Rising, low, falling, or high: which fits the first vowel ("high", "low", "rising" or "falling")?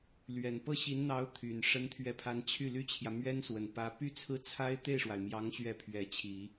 low